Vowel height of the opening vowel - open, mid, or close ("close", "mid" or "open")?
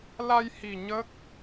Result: open